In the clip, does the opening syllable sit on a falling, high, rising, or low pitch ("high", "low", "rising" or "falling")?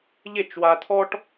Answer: falling